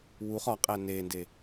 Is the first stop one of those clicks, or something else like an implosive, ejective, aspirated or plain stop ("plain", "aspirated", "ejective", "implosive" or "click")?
ejective